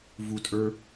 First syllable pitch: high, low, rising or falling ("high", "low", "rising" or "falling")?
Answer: high